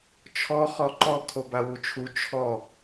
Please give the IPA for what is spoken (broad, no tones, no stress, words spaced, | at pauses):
t͡ʃʰɔ χɔǃɔ kʰobawut͡ʃʰu t͡ʃʰɔ